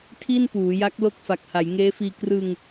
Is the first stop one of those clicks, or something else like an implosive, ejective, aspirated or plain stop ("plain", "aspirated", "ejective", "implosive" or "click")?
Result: aspirated